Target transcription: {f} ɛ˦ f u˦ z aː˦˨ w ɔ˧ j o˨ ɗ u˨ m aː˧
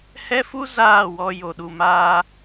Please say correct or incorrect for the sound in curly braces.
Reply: incorrect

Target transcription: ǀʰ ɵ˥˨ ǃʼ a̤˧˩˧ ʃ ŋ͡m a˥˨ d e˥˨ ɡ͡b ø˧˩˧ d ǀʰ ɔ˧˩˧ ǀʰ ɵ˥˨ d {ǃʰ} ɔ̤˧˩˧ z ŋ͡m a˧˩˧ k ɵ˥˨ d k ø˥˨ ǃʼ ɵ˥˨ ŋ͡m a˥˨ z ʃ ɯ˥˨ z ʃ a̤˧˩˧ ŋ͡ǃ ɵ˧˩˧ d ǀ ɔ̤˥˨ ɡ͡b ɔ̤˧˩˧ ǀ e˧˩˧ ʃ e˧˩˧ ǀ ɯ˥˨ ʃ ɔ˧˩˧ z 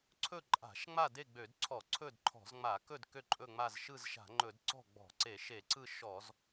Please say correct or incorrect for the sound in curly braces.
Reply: correct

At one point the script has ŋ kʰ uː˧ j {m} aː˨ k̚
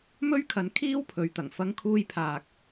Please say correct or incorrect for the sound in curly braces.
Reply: incorrect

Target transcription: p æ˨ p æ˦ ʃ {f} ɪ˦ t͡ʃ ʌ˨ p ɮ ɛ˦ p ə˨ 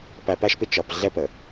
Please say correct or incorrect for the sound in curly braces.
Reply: incorrect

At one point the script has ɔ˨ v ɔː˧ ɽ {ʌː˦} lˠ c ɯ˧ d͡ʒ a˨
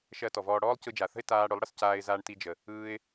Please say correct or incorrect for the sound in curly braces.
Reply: incorrect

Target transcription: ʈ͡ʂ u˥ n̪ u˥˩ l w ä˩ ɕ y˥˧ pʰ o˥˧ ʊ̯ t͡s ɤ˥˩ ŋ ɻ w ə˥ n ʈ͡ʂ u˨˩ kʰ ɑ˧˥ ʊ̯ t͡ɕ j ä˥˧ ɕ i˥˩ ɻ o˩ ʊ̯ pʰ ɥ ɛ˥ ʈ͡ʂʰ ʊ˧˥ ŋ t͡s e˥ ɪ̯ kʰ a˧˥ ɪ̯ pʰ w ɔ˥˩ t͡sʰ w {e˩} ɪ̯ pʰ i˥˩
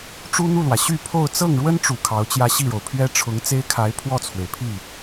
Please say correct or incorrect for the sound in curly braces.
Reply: correct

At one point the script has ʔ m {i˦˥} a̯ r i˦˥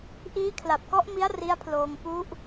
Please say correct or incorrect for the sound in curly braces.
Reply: correct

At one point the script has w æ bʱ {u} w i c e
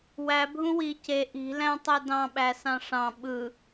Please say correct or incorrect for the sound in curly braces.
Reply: incorrect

